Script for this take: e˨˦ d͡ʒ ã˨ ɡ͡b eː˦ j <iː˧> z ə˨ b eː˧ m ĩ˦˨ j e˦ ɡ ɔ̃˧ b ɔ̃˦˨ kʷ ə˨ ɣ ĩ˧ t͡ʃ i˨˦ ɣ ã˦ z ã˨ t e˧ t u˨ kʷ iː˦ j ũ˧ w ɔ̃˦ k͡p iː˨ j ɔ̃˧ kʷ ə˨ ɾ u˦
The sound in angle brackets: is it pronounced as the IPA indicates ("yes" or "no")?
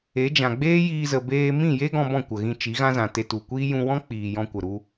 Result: yes